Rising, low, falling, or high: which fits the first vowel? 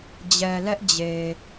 low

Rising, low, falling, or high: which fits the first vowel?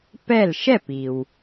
falling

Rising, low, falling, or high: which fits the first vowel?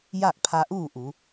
falling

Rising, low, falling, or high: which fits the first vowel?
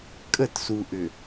falling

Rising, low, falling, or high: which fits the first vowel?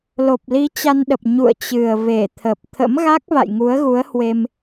low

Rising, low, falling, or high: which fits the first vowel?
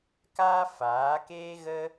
high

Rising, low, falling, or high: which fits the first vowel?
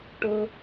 low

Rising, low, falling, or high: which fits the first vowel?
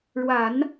low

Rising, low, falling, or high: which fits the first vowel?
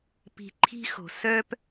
low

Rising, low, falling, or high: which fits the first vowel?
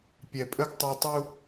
low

